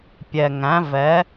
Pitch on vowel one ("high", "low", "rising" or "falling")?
low